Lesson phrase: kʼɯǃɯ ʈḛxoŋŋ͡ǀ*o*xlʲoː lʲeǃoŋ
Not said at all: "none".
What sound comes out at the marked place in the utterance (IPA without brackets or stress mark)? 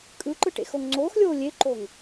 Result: oː